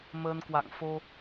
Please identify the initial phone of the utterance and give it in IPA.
m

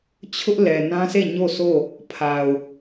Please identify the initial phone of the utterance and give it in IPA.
t͡ɕʰ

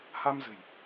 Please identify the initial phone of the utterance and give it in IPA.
h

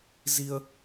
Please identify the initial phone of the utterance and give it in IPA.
z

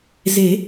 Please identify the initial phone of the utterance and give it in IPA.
z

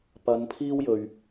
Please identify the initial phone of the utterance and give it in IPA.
p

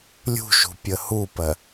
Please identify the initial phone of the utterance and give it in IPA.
lʲ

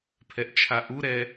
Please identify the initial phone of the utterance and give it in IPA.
pʰ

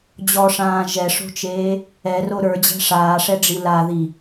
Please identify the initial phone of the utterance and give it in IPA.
d͡ʑ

